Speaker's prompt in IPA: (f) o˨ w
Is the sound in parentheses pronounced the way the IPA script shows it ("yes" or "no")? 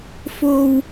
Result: yes